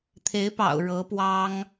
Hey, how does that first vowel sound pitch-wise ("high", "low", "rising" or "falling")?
rising